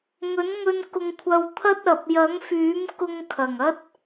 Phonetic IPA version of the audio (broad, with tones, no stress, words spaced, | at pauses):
ŋɵ˨˥nŋɵ˧n kʊ˧ŋkʷʰɐ˧wt̪ʰɐ˥t̚ɐ˨p̚ jɐ˨˥ŋfyː˨˥m kʊ˧ŋkʰɐ˨˩ŋɐ˥t̚